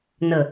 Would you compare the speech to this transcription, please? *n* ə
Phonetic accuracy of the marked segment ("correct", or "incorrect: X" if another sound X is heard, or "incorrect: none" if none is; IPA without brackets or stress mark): correct